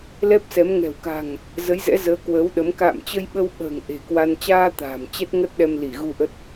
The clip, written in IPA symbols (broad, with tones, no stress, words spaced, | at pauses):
lɛ˦˥p̚sɛ˨˦m ŋɛ̤˨˩wka̤˨˩ŋ | zə˨˦jzɛ̰˧˥ zəː˨˦ kwəː˨˦wɗə˨˦m ka̰ː˧˨mt͡ɕə˧jɓə˧w ɓə̤ː˨˩ŋ ʔe̤˨˩ kwa˧n t͡ɕaː˧ t̪a̤ː˨˩mt͡ɕɛ˦˥t̚ŋə˦˥t̚ɗɛ˧m li˧˩ ɣu˧ʔə˦˥t̚